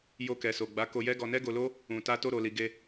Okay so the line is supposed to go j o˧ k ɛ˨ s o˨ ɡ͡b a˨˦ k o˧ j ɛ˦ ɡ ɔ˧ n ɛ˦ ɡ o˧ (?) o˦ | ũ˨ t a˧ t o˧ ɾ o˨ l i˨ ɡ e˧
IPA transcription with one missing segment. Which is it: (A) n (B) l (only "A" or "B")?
B